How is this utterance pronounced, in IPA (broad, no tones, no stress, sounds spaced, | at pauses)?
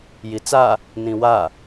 j i t͡s a | n ĩ w a